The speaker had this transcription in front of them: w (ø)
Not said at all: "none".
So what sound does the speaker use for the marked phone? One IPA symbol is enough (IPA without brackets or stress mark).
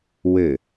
ɘ